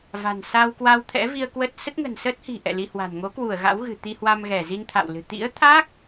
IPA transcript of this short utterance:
v a̤˨˩ n s a˧ w k w a˧ w t̪ʰ ɛ̰˧˥ v i˧ ə̯ k w ə˦˥ t̚ s ə˦˥ t̚ ŋ ə̤˨˩ n s əː˦˥ t̚ h i̤˨˩ ʔ ɛ̰˧˨ l i˧ h w a̤˨˩ n ŋ o˨˦ k w u˧˩ ə̯ ɣ a̰˧˥ w ɣ ɨ̤˨˩ t̪ i˧ h w a˧ m ɣ ɛ˧˩ z i˧ n t̪ʰ a̰˧˨ w l ɨ̤˨˩ t̪ ḭ˧˥ ə̯ t̪ʰ a˦˥ k̚

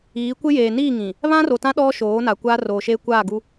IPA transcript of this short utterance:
iː˨˦ kʷ ɪ˦ j eː˨ n iː˦˨ ŋ ĩ˨ | β ã˦ r o˨ t ã˦ ɗ ɔ˦ ʃ oː˨˦ n a˨ kʷ aː˦ r oː˨ ʃ eː˦ kʷ aː˦˨ ɡ u˦

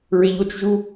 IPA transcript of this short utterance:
ɹ e ʎ o t͡ʃ ʒ u

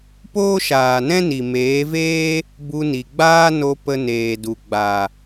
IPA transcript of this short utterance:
p oː˦ ʃ aː˨ n ɛ̃˦ n i˨ m eː˨˦ v eː˦ | b u˧ n i˨ ɡ͡b aː˦ n o˧ p ə˧ n eː˨ d u˨ ɡ͡b a˨

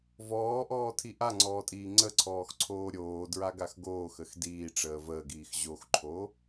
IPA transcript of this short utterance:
v ɔː ʔ ɔː tʰ i ʔ a ŋ͡ǀ ɔː tʼ iː ŋ͡ǀ ə ǀʰ ɔː x ǀʰ oː ɾʲ oː d ɹ a ɡ a x ɡ oː x ə x d iː ʈ͡ʂ əː v əː ɡ iː x ʑ o x ǃʰ o

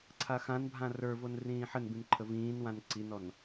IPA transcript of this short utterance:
ǀʰ a x ã n bʱ ã r ə˞ v o n r ĩː ħ ə n b ĩ n ǃʰ ə v ĩː n w ã n ǀ i n ɔ n

